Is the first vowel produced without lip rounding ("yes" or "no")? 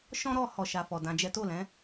no